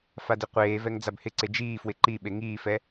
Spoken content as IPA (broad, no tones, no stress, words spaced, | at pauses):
fadiqʷeːvɛŋ d͡zabhɪǀe d͡ʒiːfwɪ ǃiɓe ŋiːfɛ